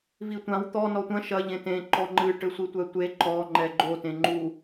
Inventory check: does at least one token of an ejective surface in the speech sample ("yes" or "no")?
no